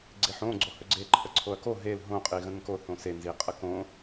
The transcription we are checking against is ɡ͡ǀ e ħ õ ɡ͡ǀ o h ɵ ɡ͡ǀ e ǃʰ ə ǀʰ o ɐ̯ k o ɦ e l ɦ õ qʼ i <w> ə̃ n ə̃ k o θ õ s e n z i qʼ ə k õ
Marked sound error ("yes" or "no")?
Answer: yes